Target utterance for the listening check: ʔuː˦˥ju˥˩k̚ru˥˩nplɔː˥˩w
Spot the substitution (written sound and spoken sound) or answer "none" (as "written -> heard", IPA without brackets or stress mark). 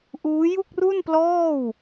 none